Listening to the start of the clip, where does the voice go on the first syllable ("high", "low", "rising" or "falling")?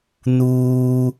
high